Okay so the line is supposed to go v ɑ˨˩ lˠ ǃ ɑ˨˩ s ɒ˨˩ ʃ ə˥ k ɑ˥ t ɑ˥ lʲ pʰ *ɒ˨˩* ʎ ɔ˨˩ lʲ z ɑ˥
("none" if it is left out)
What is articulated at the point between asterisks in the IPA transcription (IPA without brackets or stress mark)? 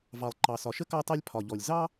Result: ɒ˨˩